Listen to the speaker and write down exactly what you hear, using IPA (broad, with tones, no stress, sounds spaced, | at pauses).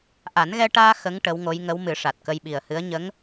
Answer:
ʔ a˨˩˦ n ɣ ɛ˧ ʈ aː˧ x ə˧˥ ŋ ʈ ə˧˥ w ŋ o˧˥ j ŋ ə˧˥ w m ɨ˨˩˦ ʂ a˨˩ t̚ k ə˧ j ɓ i˨˩ ə̯ h ɨ˧˥ ə̯ ɲ ə˧˥ ŋ